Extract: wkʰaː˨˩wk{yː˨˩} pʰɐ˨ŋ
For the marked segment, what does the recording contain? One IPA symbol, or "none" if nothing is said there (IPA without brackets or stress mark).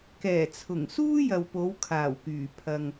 yː˨˩